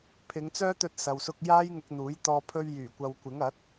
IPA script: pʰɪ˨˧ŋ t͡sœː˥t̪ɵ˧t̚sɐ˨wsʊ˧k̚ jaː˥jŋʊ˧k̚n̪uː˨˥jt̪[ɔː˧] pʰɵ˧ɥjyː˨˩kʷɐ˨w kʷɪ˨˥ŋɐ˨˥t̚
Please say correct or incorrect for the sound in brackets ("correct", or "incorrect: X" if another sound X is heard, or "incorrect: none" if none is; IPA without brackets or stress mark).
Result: correct